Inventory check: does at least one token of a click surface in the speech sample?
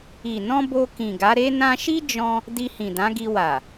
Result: no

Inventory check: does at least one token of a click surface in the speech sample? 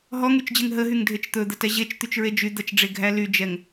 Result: no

